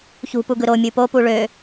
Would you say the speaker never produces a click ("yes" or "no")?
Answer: yes